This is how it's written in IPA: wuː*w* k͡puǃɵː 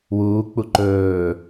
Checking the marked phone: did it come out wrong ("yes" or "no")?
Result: yes